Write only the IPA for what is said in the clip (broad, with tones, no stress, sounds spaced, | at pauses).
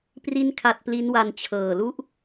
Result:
p r i˦˥ n kʰ a˨˩ t̚ p l i˦˥ n w a˧ n t͡ɕʰ ɤː˨˩ l u˦˥ ʔ